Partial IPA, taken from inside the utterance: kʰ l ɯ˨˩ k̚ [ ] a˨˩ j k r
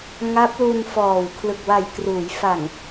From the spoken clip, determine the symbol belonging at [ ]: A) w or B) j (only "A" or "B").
A